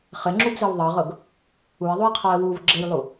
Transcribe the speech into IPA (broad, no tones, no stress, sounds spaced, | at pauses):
χ ɘ ŋ͡ǁ u b z ɘ w ðˤ ɤ ʁ ɤ ɡ | u ɪ̯ ðˤ u j qʰ ɔ ə̯ w u v ɡ͡ǁ ɘ j lˠ u